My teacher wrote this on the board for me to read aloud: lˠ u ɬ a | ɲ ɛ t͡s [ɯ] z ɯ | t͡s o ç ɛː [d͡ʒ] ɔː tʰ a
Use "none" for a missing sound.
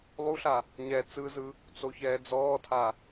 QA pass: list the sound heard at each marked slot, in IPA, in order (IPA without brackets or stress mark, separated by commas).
ɯ, d͡z